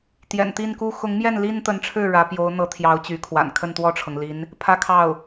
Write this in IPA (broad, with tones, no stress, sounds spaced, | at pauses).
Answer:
t̪ j ɛ̰˨˩ n t̪ i˥˩ n k u˥ x ʊ˧˥ ŋ m j ɛ˥˩ n l i˥ n t̪ ə˧˥ n ʈ͡ʂʰ ɻ̩˥˩ ɻ ä˧˥ p j o˧˥ ʊ̯ n̪ ɤ˧˥ t̪ʰ j ɑ˧˥ ʊ̯ t͡ɕ y˧˥ kʰ w a̰˨˩ n kʰ ə˥˧ n t̪ w ɔ˥˩ ʈ͡ʂʰ ɤ˩ ŋ l i˧˥ n | pʰ ä˥ kʰ ɑ˥˩ ʊ̯